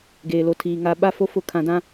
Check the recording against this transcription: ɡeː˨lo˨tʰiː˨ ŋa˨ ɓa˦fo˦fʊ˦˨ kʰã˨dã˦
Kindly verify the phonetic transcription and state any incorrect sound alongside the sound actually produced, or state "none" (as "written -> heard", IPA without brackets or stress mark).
none